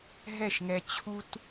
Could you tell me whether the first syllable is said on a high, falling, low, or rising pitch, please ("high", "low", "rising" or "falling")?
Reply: falling